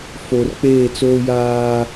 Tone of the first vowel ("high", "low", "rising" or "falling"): low